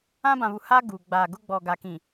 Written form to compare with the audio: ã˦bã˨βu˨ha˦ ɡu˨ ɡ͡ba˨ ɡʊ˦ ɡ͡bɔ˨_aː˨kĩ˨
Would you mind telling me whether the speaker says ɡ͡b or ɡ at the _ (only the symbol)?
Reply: ɡ